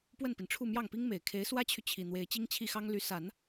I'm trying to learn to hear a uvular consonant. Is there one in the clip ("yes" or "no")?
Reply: no